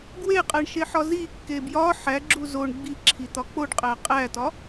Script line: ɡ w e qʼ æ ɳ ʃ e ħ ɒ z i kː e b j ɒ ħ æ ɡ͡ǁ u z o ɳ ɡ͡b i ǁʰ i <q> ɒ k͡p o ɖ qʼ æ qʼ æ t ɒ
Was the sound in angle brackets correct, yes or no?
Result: no